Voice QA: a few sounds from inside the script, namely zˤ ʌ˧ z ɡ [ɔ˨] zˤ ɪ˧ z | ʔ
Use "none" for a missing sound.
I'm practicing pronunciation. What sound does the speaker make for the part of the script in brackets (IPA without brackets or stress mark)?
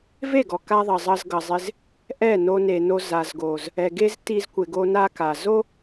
ʌ˨